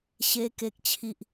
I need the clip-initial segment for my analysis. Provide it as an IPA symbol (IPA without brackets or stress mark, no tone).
ɕ